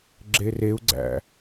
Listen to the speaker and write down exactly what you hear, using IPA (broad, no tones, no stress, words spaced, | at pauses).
ɡ͡ǁereu̯ɡ͡ǀæ̰